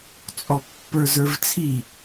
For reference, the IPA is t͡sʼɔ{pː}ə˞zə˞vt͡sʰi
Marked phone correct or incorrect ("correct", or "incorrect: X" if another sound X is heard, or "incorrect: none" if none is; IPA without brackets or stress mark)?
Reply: correct